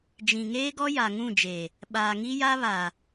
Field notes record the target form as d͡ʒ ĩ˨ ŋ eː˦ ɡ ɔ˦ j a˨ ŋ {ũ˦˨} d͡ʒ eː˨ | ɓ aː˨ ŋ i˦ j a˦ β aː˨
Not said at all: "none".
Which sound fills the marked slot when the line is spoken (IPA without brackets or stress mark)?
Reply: ũ˦˨